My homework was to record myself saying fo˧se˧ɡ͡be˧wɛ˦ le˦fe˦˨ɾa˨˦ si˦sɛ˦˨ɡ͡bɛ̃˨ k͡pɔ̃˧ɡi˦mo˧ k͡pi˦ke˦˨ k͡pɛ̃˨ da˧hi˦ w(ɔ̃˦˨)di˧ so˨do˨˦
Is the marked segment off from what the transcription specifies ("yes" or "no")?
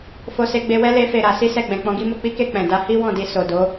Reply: no